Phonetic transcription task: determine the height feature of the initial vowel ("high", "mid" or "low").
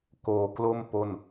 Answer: mid